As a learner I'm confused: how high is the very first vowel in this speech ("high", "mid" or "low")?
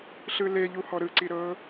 high